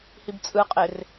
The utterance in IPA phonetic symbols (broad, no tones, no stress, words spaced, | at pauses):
hibt͡sʼɯqʼer